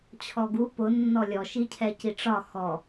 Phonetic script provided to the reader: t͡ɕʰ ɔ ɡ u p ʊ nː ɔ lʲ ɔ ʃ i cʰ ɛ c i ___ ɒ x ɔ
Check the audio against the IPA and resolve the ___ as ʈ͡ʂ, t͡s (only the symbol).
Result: ʈ͡ʂ